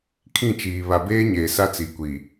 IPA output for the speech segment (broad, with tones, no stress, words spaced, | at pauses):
kʰĩ˦˨t͡ʃiː˨ βa˨beː˦ɲeː˨ sa˦t͡si˨kʷi˨